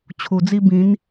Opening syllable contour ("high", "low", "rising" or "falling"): low